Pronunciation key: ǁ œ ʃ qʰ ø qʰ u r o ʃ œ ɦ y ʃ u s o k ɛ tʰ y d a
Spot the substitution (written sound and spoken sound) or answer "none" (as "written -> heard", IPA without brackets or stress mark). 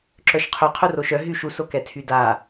none